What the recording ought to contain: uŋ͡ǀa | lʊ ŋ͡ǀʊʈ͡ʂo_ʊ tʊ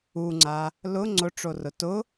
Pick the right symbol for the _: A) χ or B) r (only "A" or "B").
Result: B